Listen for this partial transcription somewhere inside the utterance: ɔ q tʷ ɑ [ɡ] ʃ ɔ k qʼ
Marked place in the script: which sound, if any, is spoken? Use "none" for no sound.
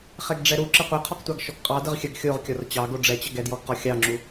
ɡ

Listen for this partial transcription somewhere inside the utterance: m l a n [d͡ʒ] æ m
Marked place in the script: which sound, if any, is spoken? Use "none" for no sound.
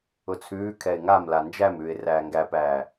d͡ʒ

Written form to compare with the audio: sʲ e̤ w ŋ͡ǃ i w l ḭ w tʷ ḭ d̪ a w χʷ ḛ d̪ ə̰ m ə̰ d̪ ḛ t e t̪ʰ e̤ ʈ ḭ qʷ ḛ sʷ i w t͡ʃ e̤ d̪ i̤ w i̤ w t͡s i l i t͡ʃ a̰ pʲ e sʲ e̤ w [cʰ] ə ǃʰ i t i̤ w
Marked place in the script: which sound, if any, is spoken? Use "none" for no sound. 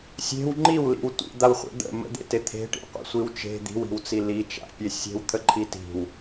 t̪ʰ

